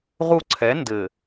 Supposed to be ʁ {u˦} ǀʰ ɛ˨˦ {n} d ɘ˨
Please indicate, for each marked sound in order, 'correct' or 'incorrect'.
correct, correct

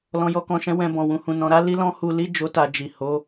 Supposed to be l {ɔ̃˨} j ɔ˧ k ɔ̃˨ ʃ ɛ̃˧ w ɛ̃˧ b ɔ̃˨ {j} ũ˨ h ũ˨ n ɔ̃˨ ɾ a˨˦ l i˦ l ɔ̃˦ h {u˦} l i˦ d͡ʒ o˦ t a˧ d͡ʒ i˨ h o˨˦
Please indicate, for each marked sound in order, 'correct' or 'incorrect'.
correct, incorrect: w, incorrect: u˧

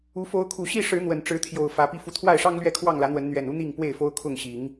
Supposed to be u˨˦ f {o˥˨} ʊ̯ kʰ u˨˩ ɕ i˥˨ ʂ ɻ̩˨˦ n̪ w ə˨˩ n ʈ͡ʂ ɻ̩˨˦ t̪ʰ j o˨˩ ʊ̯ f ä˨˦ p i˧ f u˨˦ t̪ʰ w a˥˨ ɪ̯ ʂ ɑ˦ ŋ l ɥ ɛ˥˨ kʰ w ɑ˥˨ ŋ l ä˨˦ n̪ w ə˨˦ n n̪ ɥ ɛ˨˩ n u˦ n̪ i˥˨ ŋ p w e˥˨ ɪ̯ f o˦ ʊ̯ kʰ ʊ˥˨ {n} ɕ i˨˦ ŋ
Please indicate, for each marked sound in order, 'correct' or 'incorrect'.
incorrect: o˨˦, incorrect: ŋ

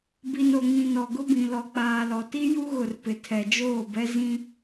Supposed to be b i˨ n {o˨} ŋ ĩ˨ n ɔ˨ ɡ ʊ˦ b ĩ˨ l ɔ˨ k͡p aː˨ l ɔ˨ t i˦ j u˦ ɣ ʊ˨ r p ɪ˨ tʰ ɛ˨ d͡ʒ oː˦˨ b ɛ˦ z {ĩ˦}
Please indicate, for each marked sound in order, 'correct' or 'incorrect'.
correct, correct

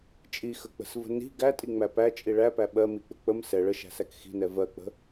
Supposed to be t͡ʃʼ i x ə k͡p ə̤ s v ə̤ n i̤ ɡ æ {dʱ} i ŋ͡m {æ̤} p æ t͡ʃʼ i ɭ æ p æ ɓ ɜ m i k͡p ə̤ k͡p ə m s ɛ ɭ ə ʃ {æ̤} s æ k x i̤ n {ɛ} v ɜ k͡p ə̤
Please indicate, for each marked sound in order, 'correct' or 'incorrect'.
incorrect: tʼ, incorrect: æ, correct, correct

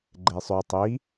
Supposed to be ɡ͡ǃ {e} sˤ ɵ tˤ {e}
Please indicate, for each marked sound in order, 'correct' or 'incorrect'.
correct, incorrect: i

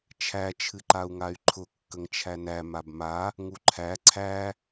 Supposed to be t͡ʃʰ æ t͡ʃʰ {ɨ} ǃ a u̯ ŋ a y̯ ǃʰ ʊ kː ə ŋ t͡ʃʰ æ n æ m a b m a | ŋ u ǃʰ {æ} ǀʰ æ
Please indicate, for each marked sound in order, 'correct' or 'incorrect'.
correct, correct

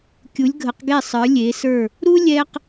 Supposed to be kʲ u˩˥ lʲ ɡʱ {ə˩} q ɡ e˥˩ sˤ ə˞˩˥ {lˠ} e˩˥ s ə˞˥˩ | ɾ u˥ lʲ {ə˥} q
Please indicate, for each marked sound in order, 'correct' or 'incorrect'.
incorrect: ə˩˥, incorrect: lʲ, incorrect: ɛ˥

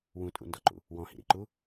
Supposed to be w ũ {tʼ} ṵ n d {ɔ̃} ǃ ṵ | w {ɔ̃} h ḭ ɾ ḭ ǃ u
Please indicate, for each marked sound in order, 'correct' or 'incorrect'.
correct, incorrect: ɔ, correct

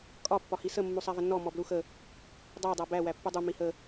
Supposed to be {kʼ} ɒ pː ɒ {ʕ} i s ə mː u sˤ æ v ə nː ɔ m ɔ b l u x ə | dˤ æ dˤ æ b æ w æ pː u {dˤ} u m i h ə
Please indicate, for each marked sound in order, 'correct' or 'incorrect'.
correct, incorrect: h, correct

